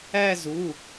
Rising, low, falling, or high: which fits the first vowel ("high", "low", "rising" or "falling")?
falling